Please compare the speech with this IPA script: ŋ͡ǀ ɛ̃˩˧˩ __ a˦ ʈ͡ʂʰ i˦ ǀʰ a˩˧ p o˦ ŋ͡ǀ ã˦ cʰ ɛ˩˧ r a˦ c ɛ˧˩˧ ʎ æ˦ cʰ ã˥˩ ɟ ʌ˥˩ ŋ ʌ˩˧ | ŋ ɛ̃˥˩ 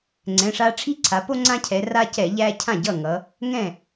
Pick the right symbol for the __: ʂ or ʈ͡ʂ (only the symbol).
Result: ʂ